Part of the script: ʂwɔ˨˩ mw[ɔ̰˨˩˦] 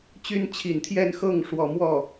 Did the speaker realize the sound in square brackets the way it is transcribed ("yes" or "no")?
no